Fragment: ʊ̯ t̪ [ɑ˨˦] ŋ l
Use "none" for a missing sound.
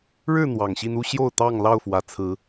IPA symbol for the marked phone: ɑ˥˨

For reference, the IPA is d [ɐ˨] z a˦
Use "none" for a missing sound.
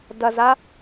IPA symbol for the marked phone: ɐ˨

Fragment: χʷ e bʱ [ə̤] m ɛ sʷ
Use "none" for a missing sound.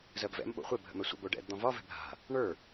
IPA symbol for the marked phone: ə̰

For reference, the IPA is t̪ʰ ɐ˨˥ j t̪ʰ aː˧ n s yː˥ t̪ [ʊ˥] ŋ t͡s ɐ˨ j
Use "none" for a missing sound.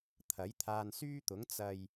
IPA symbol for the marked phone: ʊ˨˥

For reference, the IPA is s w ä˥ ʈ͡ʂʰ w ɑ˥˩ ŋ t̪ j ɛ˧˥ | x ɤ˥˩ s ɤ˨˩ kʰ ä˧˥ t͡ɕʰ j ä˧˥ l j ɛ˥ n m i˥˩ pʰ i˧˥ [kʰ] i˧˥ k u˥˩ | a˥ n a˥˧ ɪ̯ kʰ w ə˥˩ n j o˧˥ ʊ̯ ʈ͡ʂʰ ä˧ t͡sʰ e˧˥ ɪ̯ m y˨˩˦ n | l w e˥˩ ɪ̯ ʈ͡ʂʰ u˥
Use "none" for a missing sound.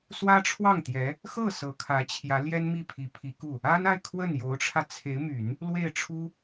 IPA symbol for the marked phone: pʰ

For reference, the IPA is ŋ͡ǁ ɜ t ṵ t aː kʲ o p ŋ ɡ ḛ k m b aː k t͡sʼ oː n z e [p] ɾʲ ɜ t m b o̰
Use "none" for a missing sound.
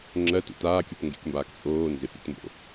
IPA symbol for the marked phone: p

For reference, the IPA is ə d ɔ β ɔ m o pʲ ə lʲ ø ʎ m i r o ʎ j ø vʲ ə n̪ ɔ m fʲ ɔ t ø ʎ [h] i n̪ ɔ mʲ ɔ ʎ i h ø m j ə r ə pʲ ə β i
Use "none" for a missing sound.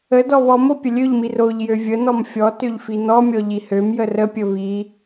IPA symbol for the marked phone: f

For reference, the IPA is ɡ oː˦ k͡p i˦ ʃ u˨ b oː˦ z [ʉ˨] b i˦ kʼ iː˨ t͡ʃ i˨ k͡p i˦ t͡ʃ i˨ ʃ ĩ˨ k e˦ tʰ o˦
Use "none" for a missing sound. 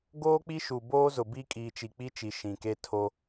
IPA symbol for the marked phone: ʊ˨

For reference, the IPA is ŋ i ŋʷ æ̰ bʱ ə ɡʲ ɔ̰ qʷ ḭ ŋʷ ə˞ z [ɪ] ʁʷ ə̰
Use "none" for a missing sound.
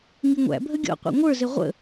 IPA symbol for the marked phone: ɪ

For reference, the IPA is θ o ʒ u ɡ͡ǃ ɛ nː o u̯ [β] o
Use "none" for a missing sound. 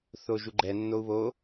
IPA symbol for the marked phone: β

